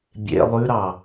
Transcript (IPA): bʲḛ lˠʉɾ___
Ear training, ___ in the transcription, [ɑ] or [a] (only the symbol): ɑ